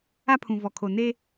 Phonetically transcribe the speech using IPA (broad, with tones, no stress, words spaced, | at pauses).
a˦pʰũ˨ vɔ˨kʰo˨ ne˦